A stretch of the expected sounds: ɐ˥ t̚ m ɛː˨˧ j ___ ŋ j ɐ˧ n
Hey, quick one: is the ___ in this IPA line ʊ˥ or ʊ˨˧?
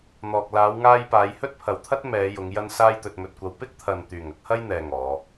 ʊ˨˧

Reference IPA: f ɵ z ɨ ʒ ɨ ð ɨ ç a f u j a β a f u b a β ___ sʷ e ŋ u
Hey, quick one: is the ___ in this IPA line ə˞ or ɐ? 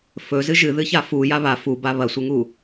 ɐ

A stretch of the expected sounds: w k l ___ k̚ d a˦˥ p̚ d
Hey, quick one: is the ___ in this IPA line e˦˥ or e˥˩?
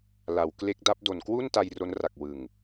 e˦˥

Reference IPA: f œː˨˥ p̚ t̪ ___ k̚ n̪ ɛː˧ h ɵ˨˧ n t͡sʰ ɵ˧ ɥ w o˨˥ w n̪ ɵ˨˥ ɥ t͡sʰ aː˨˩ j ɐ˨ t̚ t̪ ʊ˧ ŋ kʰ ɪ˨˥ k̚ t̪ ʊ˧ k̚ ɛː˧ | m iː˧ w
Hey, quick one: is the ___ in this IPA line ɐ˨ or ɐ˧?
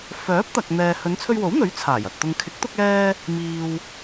ɐ˨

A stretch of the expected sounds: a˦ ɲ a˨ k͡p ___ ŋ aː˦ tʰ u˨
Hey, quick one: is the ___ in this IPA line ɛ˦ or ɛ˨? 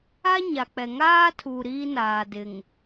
ɛ˨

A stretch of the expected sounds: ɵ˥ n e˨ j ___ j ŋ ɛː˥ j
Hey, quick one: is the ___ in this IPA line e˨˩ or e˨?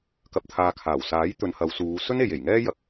e˨˩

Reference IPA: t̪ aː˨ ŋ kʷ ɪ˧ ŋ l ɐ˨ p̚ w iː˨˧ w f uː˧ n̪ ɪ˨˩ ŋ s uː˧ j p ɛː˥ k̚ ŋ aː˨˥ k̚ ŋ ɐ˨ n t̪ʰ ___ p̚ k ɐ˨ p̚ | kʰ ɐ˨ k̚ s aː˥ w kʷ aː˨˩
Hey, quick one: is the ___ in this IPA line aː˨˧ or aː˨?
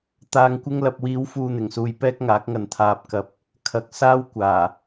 aː˨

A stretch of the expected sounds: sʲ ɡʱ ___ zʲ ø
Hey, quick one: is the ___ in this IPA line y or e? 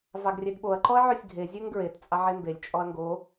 e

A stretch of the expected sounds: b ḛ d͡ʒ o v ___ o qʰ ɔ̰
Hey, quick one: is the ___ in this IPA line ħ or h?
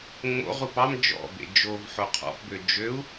ħ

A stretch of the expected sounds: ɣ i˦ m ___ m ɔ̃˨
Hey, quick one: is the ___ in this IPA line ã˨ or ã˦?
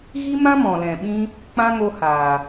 ã˦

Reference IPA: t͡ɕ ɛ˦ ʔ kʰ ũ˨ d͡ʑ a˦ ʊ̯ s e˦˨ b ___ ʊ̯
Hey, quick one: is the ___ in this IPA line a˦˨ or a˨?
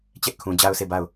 a˦˨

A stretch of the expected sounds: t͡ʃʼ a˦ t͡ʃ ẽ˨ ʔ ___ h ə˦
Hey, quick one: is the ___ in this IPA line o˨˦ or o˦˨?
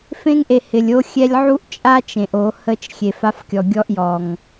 o˨˦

